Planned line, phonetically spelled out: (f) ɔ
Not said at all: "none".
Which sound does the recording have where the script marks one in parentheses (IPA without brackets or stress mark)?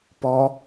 p